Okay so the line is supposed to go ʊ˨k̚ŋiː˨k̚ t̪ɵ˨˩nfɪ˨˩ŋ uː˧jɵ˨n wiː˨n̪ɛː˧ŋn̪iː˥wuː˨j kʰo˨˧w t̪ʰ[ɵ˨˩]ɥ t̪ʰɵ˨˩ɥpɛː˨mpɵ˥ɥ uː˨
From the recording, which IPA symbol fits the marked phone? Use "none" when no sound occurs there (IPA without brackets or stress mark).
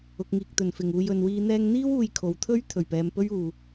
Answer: ɵ˥